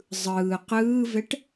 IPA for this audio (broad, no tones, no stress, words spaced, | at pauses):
zˤɯː qɯːvɛʈ